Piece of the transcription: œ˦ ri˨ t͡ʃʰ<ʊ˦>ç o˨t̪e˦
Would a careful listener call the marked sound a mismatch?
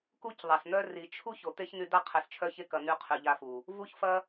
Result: yes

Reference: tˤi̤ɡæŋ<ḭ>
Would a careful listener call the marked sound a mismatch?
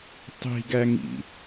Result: no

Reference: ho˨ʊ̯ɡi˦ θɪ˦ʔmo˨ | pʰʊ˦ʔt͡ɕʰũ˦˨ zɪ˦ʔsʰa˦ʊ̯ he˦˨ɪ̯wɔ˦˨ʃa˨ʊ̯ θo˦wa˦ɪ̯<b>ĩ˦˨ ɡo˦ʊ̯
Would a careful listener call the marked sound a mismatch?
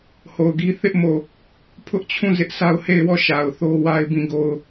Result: no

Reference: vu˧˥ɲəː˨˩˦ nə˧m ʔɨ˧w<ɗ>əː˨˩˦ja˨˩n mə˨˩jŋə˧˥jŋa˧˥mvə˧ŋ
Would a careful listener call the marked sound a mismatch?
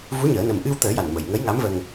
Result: yes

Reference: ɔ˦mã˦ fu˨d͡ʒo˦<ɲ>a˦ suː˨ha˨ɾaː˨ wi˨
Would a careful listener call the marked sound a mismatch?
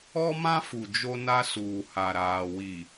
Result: yes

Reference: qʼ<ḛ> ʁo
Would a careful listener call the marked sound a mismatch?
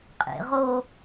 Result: no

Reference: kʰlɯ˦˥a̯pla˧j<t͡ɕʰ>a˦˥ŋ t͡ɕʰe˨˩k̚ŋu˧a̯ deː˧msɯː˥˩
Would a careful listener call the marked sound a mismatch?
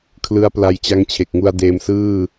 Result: yes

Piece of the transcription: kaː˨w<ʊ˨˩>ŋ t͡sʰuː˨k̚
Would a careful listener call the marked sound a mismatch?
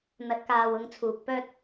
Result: yes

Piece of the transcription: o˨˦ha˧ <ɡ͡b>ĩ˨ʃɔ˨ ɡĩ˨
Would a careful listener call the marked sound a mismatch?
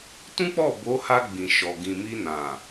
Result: no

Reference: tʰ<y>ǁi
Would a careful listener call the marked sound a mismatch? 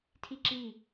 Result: yes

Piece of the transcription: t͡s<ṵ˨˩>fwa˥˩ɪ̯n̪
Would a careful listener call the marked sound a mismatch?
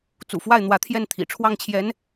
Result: no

